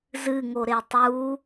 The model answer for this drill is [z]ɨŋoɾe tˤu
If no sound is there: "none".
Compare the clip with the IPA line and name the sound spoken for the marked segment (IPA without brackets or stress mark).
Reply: z